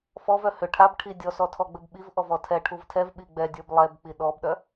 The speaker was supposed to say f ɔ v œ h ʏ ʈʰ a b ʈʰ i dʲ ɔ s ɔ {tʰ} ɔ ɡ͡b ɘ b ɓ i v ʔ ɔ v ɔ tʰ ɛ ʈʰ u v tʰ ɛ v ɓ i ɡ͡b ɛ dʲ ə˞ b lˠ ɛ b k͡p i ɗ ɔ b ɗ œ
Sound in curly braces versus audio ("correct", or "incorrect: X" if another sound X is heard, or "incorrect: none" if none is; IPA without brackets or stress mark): correct